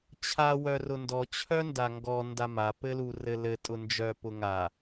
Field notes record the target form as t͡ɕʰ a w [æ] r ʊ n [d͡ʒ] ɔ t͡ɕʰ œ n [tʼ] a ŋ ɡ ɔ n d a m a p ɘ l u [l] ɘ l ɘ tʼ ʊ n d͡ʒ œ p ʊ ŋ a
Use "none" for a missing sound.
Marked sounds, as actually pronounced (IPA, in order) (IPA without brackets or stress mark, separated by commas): œ, d, d, r